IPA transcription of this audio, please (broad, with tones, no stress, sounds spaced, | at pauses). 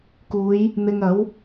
k uː˨˧ j | n̪ ɪ˧ ŋ ɐ˨˥ w